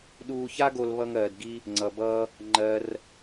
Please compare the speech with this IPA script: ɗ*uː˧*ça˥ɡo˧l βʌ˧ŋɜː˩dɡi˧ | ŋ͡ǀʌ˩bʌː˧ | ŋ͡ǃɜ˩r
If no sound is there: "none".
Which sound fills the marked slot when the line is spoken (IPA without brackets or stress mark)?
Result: uː˧